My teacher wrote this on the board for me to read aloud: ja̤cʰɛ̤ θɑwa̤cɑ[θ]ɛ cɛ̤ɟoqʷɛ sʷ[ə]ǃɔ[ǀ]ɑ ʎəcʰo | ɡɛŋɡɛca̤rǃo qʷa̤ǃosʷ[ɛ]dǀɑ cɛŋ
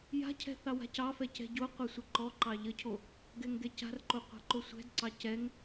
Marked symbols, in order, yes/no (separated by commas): no, yes, no, no